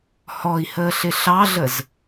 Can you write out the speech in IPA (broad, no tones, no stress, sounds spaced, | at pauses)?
h ɔ i̯ h əː ɬ ɪ ɬ ɑ ɮ ə z